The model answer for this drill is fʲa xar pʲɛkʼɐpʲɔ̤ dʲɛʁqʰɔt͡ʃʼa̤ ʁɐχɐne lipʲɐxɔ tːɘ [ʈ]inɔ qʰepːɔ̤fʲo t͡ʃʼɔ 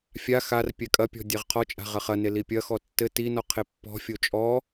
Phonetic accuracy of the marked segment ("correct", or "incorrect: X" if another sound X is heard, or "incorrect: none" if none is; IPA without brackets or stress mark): incorrect: t